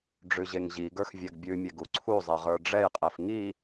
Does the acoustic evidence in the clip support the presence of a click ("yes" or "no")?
yes